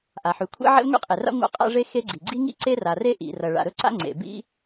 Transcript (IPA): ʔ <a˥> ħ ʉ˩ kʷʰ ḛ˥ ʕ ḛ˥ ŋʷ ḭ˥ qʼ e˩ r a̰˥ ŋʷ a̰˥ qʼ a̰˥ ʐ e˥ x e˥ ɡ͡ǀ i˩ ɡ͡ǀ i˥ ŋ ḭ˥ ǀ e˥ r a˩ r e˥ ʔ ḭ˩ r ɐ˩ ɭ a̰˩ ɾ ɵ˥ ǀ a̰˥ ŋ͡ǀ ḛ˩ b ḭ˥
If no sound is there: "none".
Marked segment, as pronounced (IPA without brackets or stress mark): a˩